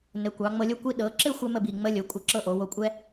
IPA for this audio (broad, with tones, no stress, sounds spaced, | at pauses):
n ɘ˩˧ kʷ ɑ˩˧ ŋ͡m ɤ˧ lʲ o˥ kʷ i˧ ɗ ɤ˩˧ ǁ ɘ˥˧ xʷ ɛ˧ m ə˥˧ b i˧˩ ŋ͡m ə˥ lʲ o˩˧ kʷʼ ə˧ ǁ ɤ˥˧ ʔ o˩˧ w o˧ kʷʼ ɛ˥